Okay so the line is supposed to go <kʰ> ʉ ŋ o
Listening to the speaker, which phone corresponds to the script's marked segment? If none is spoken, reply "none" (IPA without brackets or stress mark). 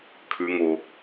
kʰ